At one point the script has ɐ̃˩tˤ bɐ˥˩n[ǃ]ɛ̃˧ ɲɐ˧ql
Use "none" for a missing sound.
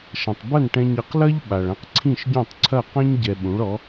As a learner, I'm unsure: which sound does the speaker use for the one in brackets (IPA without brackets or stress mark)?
ʈ